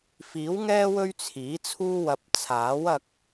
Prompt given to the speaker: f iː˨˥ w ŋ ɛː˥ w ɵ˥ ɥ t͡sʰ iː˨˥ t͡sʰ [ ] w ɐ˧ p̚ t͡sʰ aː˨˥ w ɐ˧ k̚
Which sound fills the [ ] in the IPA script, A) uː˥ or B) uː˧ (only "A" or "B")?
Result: A